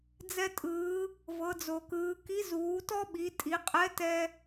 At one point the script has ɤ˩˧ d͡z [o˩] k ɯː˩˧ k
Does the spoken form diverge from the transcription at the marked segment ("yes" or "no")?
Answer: no